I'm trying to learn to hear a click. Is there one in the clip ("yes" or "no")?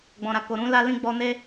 no